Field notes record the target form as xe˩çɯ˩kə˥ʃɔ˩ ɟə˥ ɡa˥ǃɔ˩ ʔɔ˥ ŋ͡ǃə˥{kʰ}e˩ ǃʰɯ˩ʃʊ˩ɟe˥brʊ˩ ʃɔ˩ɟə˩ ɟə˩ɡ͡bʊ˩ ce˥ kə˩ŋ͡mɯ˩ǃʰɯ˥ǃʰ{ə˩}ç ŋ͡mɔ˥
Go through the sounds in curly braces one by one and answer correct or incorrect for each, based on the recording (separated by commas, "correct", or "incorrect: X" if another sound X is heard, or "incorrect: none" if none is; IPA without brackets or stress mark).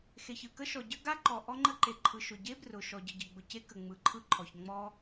incorrect: ǃ, incorrect: ɔ˩